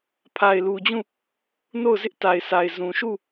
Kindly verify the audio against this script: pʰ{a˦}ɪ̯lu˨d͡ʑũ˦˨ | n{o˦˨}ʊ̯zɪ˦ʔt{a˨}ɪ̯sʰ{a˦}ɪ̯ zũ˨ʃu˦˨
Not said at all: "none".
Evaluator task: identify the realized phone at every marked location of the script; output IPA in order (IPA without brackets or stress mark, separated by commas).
a˨, o˦˨, a˨, a˨